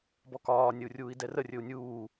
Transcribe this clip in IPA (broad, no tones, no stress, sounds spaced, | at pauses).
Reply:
b ɔ k ɒː nʲ ə u̯ rʲ uː i̯ d ɛ r ə rʲ ɵ u̯ nʲ uː